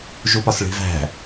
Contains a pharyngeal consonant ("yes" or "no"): no